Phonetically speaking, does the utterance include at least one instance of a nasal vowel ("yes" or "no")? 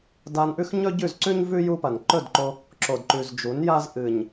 no